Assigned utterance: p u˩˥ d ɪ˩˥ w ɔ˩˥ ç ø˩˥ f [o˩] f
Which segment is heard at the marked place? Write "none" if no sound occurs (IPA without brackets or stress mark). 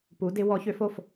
o˩